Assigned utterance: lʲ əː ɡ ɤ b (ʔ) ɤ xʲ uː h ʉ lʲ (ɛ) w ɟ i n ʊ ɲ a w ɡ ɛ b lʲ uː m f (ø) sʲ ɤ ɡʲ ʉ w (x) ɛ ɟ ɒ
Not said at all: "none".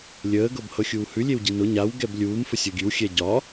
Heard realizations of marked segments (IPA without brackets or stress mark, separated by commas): h, e, ə, xʲ